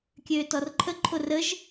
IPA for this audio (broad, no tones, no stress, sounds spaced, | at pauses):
kʲ øː t ɔ r ǃʰ ə ǃʰ o r ə ʒ